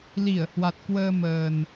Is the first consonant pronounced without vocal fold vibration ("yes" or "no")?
no